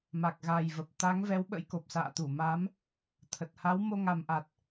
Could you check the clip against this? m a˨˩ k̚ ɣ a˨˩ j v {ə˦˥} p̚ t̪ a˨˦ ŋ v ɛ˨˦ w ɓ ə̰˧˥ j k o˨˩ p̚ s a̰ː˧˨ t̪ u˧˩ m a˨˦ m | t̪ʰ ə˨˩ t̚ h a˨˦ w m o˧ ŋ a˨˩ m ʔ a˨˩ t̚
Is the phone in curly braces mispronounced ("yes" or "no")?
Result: yes